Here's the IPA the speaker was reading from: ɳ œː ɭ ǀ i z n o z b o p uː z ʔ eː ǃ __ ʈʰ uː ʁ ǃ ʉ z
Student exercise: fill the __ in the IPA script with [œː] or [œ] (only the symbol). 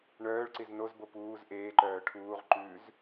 œː